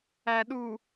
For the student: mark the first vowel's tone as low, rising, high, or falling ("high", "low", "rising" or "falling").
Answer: low